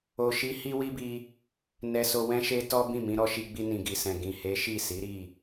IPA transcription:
o˧ʃi˦ hi˦wi˦bi˧ | nɛ˧so˧ wɛ̃˦ʃe˦ tɔ˦bĩ˦˨mĩ˧ ɾɔ˧ʃi˧ɡ͡bi˧ nĩ˨ɡi˨sɛ̃˨ ɡĩ˨he˨˦ ʃi˦˨si˨˦ɾi˦˨

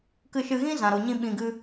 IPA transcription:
kɨ˧ʃɨ˧ɣĩ˦ zã˨ɾo˨ɲĩ˧ ɓĩ˧ɡɨ˦

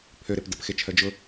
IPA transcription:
pʰøɾep dəpxet͡ʃʰœ d͡ʒʊ

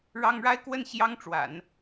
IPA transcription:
ɻɑ˥ŋ ɻa˥ɪ̯kwə˥˩n ɕjɑ˥ŋ ʈ͡ʂwa̰˨˩˦n

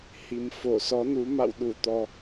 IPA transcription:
hi˨˩mfo˧˩ sɔ˨˦nu˨˦ ma̰˧˨wɗu˧˩t̪ɔ˨˩

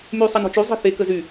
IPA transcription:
myːsˤɛnɔ̤t͡ʃy zˤɛ̤θe kəzy

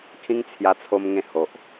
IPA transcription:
kʰĩ˦ŋt͡sʰja˧t͡sʰo˧m ŋẽ˧ ho˨ʔ

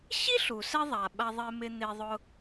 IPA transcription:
ɕi˥ɬu˩sɛ˧ðˤa˩ ɓa˧ðˤe˧mɪ˧ n̪e˧ðˤʊ˧

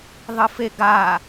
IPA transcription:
ðˤɨfeɡa

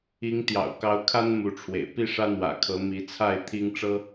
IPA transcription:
i˨˦ŋ t̪jɑ̰˨˩ʊ̯ kɑ˨˦ʊ̯kʰa˦n mu˨˦ʈ͡ʂʰwḛ˨˩ɪ̯ pi˥˨ʂä˦n̪wä̰˨˩kʰɤ˨˦ mi˨˦t͡sʰa˥˨ɪ̯t̪ʰi˦ŋʈ͡ʂɤ˦

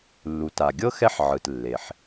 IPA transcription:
lːu˩ta˩ɡʲɤ˥ xɛ˥ħʕɯ˩t lːe˩ħ

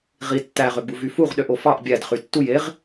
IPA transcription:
ʁi tːæʁøɡ͡bu vyfuʁ ɗøʔofɑʔ bʲæd χytːuj eʁ

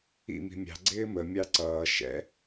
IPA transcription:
ḭ mi̤mʲɑ̤ ɡ͡ǀɪːmə mʲɑǀʌː ʃɛ̰

